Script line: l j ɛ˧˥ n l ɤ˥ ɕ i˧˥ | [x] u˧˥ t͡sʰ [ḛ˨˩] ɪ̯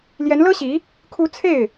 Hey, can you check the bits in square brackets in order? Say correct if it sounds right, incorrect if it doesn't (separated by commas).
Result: incorrect, incorrect